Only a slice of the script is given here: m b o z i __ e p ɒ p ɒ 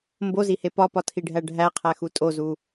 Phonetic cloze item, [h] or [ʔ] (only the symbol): h